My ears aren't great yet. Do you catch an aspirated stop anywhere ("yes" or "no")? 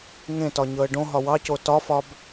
no